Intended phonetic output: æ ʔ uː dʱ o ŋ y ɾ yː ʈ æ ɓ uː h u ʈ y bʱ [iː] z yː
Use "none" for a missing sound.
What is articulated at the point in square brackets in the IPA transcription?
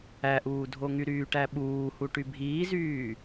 iː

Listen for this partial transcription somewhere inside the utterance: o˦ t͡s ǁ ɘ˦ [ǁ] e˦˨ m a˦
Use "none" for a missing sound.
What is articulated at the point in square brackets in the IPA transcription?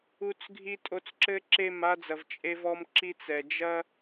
ǁ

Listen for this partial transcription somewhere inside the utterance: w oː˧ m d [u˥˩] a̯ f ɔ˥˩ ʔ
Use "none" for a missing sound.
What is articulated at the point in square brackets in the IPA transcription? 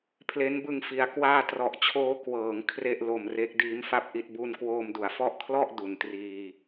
u˩˦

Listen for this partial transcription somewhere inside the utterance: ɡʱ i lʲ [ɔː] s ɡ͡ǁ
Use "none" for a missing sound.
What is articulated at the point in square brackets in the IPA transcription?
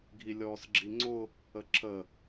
ɔː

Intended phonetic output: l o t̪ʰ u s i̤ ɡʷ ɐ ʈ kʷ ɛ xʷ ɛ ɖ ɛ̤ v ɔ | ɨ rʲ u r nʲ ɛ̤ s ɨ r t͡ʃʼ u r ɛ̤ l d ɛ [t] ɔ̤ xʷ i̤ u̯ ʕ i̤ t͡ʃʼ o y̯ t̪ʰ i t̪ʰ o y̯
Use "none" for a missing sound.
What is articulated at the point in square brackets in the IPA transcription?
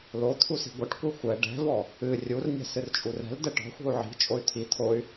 ʈ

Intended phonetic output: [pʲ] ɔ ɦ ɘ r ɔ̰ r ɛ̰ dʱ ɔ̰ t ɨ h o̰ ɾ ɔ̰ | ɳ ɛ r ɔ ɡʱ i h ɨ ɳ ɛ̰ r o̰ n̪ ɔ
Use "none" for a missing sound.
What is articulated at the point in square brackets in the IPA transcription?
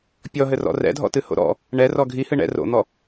pʲ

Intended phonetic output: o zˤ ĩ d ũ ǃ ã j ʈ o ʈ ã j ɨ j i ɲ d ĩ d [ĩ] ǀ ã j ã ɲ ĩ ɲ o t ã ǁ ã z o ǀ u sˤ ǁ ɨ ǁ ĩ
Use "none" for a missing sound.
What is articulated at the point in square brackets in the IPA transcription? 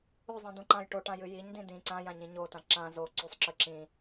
ĩ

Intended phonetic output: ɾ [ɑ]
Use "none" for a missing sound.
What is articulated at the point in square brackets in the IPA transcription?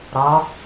ɒ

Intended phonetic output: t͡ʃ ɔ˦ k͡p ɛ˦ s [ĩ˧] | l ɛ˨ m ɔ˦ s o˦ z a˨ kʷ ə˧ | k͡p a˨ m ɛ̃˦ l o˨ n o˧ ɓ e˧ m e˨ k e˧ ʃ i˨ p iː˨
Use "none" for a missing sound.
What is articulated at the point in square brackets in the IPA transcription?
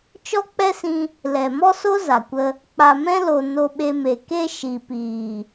ĩ˧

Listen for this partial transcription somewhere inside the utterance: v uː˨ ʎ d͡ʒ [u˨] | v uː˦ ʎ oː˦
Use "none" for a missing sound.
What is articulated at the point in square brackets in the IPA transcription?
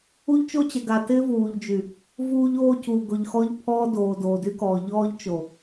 y˨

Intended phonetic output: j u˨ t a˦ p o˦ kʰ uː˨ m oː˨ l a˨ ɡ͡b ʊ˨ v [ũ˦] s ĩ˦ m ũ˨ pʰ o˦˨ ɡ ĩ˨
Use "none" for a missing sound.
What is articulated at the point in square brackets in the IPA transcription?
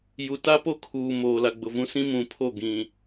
ũ˦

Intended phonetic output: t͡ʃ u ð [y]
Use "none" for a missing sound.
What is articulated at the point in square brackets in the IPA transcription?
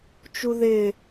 ɪ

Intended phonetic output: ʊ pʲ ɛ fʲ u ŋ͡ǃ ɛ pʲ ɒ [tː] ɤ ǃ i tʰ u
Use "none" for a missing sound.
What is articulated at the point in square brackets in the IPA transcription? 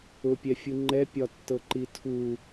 tː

